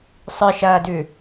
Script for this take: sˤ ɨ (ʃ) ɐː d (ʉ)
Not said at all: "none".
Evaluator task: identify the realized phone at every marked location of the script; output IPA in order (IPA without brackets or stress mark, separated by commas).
ʃ, ʉ